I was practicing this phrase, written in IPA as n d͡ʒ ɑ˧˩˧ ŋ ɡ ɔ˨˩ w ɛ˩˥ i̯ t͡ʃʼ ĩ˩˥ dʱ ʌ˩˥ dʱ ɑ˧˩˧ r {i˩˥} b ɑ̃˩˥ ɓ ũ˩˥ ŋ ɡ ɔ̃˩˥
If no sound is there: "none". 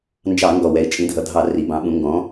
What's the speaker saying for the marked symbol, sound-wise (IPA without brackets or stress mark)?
i˩˥